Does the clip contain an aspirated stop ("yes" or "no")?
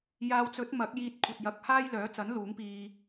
yes